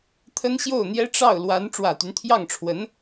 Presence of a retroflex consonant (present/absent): present